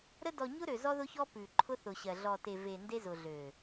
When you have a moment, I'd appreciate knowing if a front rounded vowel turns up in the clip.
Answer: yes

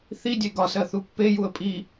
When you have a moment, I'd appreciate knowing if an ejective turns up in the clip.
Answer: yes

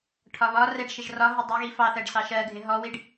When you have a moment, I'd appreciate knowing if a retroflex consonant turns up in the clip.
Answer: yes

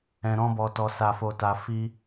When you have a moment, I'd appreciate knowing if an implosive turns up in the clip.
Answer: no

